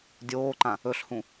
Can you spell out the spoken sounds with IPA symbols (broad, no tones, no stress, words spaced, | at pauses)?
dʲoːǃã | ɵɬhũ